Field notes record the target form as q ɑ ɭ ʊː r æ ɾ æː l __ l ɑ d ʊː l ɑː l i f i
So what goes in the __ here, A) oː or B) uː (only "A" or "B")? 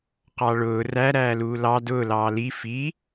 B